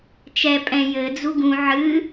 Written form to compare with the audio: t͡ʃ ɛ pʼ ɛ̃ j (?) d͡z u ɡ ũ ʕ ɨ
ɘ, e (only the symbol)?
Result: ɘ